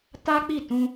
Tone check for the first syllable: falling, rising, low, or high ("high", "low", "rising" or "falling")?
high